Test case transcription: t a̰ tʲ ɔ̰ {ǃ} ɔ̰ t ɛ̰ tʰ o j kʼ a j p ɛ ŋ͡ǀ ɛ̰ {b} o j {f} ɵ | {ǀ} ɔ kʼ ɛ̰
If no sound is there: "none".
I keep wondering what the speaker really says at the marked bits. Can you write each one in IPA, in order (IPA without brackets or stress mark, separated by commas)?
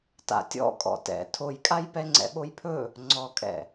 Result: kʼ, ɓ, pʰ, ŋ͡ǀ